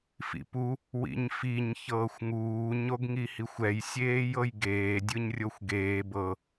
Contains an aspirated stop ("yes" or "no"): no